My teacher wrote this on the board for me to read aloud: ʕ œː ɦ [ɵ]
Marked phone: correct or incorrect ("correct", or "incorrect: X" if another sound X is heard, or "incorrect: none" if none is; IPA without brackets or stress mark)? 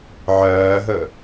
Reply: correct